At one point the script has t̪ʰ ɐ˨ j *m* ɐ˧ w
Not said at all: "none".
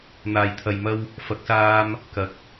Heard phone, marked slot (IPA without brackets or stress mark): m